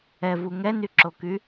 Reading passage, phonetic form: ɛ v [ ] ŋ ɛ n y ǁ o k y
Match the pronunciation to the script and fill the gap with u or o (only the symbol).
u